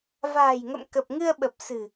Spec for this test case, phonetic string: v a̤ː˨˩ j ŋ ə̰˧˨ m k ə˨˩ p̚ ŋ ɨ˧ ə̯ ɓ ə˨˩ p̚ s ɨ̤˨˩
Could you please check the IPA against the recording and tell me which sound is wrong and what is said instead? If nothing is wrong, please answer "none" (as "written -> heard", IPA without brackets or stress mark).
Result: none